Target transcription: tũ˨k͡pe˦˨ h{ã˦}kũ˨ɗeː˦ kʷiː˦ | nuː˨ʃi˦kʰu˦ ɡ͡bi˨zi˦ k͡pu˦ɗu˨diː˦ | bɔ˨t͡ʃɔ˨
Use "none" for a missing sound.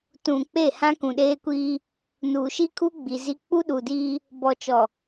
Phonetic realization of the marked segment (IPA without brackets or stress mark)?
ã˦